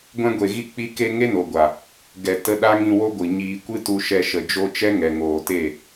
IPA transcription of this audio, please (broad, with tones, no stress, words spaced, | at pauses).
ɡʷɛ̃˧ɡʷe˨ɣi˧ k͡pi˧ke˧ ŋe˦no˨ɡʷa˨ | ɡɛ˨ tə˧ɗa˦ŋĩ˧wo˦ ɡʷɨ˨ɲiː˧ kʷɨ˦tu˧ʃɛ˧ ʃə˨d͡ʒo˧t͡ʃɛ˦ ŋɛ˨ŋoː˨te˦˨